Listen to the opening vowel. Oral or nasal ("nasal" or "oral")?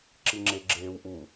oral